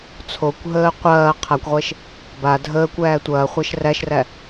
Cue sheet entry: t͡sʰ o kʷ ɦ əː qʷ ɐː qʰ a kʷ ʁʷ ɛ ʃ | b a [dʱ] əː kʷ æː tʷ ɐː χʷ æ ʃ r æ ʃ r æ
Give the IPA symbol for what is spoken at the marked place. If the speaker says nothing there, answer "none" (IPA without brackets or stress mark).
dʱ